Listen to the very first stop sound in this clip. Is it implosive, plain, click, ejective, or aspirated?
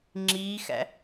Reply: click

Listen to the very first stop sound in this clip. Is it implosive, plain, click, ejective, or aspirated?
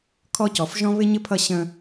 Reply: aspirated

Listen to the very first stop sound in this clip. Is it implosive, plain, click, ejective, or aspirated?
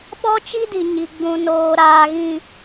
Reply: implosive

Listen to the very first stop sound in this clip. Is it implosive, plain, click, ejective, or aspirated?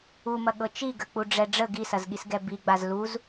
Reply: implosive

